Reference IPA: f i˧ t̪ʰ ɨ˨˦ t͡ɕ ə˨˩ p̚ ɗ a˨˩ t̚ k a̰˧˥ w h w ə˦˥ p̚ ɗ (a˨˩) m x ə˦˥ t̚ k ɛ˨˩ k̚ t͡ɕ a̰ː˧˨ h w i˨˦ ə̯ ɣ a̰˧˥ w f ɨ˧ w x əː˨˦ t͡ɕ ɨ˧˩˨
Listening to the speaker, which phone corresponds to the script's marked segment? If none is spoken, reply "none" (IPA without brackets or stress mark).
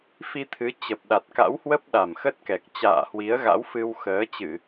a˨˩